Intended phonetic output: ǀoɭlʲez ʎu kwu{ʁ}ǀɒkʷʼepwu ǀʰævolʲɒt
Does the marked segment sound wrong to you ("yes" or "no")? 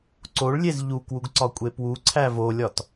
yes